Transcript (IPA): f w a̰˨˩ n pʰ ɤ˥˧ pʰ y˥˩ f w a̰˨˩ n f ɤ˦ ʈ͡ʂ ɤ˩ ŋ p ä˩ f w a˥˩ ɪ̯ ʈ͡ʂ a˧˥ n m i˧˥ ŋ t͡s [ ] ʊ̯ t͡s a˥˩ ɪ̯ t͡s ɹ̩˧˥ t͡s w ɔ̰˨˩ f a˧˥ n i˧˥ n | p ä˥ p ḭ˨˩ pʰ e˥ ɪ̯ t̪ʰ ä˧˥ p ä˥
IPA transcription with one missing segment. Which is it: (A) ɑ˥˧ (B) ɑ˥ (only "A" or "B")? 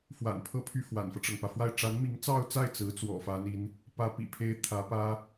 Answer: A